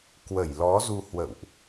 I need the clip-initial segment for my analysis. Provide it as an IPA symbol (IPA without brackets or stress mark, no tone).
k